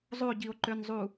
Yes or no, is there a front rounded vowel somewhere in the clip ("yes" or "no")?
yes